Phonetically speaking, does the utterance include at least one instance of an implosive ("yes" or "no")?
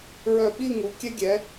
yes